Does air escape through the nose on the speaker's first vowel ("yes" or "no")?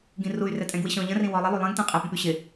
yes